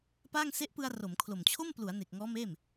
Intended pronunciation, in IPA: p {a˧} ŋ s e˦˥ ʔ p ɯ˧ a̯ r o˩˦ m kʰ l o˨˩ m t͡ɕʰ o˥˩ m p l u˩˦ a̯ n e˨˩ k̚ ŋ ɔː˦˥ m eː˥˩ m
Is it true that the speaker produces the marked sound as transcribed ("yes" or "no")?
no